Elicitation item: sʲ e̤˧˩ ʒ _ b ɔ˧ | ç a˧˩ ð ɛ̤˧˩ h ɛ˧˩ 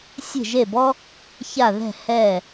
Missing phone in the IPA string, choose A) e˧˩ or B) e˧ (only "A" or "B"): A